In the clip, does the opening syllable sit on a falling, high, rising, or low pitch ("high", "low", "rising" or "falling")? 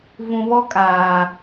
low